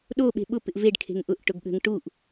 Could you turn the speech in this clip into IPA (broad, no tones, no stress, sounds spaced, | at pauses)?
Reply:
ɗ o ɓ e̤ ɓ ʊ p ɪ ʔ v e ɖ kʰ e̤ ŋ ʔ ʊ ʔ ʈ ʊ ɡ ɠ ə̤ ŋ ʈ u ʔ